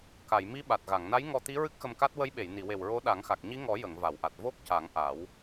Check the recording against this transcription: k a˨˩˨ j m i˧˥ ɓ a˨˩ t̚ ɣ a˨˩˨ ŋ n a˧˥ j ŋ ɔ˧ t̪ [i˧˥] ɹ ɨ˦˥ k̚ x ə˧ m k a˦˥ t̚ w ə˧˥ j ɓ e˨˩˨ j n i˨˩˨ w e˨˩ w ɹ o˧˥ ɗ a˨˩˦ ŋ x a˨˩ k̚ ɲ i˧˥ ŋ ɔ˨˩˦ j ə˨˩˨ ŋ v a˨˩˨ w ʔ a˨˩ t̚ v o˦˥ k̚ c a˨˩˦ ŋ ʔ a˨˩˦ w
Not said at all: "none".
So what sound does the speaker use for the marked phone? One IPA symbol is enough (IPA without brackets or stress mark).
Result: i˧˥